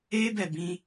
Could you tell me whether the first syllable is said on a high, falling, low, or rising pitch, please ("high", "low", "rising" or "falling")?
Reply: high